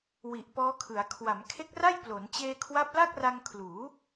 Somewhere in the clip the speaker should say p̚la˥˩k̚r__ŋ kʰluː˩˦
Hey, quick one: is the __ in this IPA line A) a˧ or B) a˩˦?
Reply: A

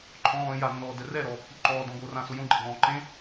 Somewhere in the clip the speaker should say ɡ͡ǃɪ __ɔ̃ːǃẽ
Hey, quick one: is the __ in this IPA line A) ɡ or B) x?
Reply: A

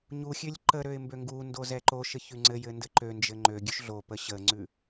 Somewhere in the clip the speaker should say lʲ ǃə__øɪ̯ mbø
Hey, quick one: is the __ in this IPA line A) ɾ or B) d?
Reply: A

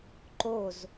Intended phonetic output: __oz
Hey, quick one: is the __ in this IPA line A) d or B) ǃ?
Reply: B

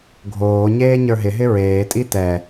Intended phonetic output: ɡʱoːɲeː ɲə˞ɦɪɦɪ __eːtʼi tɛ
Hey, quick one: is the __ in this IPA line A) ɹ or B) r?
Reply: A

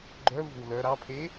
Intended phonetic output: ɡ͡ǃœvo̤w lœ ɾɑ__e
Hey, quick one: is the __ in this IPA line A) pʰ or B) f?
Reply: A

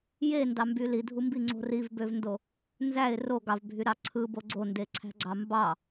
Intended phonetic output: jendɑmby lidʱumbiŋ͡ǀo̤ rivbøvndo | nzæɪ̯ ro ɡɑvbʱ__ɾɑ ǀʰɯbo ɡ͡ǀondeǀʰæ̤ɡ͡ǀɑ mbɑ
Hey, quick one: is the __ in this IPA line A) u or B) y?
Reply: B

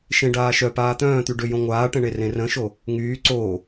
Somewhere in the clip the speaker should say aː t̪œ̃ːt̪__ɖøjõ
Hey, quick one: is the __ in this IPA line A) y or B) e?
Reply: A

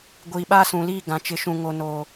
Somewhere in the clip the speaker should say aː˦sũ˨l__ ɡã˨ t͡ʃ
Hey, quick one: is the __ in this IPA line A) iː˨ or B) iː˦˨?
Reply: B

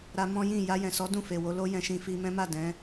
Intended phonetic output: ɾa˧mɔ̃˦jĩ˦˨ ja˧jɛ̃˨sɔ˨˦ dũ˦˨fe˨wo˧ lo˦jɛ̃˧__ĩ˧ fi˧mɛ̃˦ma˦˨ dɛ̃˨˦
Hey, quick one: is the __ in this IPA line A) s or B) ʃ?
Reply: B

